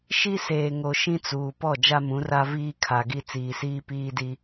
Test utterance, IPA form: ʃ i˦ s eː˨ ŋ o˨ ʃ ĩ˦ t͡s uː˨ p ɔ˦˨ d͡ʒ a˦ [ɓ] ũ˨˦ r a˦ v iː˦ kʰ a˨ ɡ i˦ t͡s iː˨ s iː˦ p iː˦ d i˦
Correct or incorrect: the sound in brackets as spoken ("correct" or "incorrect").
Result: incorrect